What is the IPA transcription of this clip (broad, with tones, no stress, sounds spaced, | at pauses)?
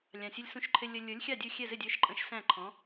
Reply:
lʲ ɑ̃˨˩ sʲ ʌ˧ lʲ s ũ˧ ʃ ǃʰ ɪ˧ lʲ ə˧ lʲ ə˞˨˥ lʲ xʲ ɑ˥˩ dʲ u˥˩ xʲ ɛ˥˩ z ɪ˥˩ dʲ ə˞˧ ʃ ǃʼ ə̃˨˥ ʃ s æ̃˥˩ ǃʰ ɔ̃˨˥